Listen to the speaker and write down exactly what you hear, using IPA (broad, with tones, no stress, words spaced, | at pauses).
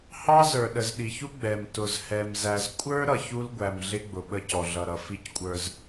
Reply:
hɑ˦zə˞˨ ɗə˨zɗi˨çu˦ ɡ͡bɛ˨m tʊ˨zhɛ˨mzæ˨z kʷʼə˞˦ ɾʌ˨çu˦lɡʷæ˨mɮɪ˦ ɡ͡bʊ˨ɓə˦cɔ˨ɮʌ˨ ɾʌ˨fi˦ckʷʼə˞˨z